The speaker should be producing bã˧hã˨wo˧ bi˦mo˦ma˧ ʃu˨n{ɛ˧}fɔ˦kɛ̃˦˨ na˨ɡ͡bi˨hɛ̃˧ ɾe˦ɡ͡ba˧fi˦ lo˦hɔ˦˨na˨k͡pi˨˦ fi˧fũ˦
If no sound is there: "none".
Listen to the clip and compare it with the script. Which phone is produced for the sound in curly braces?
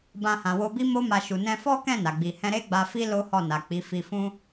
ɛ̃˧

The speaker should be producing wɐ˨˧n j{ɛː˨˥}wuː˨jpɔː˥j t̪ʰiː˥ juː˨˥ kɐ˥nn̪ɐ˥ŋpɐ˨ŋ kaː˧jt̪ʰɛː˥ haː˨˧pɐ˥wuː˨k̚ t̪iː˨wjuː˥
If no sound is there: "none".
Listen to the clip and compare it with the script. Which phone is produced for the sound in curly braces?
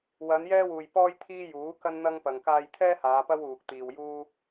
ɛː˥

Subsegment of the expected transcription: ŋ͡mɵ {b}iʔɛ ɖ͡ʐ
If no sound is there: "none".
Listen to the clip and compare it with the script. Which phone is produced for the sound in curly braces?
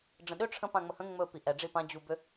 p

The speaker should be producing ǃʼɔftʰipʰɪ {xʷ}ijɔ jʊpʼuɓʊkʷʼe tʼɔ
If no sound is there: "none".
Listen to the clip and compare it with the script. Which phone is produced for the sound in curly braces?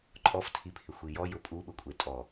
xʷ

